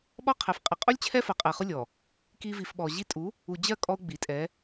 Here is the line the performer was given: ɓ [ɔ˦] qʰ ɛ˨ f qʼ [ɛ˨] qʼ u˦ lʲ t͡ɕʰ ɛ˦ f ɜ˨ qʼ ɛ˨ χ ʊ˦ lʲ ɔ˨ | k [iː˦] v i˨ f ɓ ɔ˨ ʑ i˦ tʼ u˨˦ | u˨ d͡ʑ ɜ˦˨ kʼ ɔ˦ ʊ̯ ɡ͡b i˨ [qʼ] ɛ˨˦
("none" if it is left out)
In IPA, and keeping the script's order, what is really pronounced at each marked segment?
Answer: ɔ˦, ɪ˨, i˦, tʼ

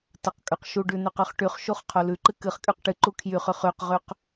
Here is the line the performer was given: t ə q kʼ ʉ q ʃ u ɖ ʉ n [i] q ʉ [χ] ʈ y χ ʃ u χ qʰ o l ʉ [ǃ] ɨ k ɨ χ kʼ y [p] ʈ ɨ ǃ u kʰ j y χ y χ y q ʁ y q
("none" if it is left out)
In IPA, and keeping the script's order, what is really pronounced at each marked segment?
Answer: y, χ, ǃ, q

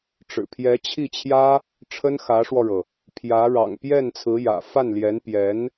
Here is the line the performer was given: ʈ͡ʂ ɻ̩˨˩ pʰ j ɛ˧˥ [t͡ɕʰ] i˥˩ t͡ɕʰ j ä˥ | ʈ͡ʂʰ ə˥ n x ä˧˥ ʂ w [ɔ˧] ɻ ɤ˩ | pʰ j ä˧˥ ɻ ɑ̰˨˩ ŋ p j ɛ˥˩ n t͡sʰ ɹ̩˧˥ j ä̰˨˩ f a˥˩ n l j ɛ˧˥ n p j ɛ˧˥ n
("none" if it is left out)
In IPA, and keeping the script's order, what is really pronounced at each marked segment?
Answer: t͡ɕʰ, ɔ˧

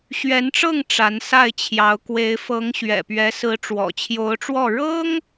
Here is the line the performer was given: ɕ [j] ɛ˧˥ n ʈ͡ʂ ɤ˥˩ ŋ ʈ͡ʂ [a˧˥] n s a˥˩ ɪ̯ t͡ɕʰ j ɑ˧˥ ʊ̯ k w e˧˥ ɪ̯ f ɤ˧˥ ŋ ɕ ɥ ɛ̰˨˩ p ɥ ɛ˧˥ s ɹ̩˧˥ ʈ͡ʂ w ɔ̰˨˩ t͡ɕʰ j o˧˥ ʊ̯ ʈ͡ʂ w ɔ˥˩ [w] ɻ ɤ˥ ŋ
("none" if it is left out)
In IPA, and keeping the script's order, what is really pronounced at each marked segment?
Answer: ɥ, a˧˥, none

